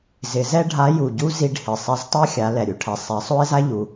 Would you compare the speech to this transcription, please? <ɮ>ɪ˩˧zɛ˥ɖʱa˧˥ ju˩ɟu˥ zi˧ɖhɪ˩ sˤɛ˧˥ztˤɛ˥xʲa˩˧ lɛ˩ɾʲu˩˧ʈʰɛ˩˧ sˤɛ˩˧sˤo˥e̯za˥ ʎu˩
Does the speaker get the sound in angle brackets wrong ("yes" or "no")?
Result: yes